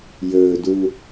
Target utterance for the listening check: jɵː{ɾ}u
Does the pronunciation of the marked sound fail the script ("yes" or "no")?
yes